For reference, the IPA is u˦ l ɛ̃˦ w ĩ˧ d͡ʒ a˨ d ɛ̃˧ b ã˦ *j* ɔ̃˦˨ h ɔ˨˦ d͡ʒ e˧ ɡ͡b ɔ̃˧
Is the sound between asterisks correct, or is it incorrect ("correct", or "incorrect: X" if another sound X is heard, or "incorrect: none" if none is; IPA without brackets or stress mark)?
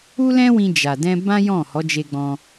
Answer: correct